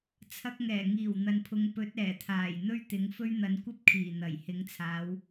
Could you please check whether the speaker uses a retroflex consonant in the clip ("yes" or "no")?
no